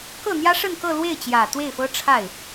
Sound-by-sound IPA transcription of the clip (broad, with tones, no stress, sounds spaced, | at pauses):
k ɤ˥˩ n̪ j ä˥ ʂ ə˥˧ n k ɤ˥˧ l w e˥˩ ɪ̯ t͡ɕ j ä˨˩ t̪ w e˥˩ ɪ̯ f ɤ˥ ʈ͡ʂʰ a˥˩ ɪ̯